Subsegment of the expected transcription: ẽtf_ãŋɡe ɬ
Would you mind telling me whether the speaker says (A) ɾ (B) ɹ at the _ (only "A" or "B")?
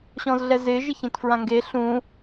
B